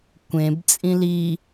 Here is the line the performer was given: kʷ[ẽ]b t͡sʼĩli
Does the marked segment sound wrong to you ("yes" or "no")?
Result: no